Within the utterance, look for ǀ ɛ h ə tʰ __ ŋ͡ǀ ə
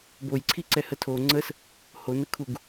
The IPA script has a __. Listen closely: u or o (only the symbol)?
o